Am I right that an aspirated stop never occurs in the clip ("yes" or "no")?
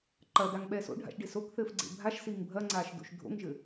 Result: yes